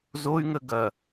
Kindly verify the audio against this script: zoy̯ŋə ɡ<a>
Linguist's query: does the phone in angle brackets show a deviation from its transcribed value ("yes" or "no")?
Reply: yes